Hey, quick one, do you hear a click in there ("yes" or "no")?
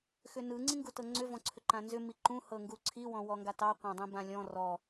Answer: yes